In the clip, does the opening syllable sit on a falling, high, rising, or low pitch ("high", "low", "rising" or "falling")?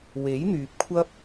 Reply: rising